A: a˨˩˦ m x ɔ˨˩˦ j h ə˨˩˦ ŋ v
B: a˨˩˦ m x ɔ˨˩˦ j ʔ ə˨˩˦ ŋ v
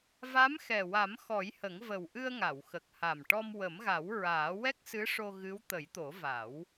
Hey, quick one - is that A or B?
A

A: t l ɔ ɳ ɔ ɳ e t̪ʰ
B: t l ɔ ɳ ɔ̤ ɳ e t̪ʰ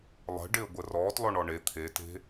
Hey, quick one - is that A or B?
A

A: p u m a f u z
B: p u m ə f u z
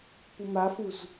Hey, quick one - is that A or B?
A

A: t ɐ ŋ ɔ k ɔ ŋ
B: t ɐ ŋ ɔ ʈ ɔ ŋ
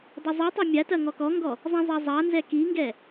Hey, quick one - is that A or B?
A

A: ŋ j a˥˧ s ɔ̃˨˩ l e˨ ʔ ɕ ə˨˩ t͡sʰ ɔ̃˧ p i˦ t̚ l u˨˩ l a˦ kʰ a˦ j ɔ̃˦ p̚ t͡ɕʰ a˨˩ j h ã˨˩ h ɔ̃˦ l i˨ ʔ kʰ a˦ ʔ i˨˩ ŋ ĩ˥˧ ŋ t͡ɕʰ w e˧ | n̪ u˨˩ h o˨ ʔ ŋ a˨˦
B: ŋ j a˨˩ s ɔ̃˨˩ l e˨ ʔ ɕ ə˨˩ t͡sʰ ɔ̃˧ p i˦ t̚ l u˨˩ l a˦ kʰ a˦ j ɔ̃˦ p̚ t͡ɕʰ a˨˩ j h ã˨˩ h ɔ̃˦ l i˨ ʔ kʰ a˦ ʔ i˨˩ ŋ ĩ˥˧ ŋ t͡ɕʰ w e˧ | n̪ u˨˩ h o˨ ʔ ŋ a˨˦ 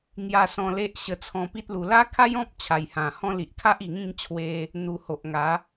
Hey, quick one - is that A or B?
B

